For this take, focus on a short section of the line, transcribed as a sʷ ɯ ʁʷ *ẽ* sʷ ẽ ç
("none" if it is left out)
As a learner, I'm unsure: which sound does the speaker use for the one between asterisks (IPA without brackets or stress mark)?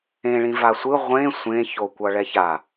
ẽ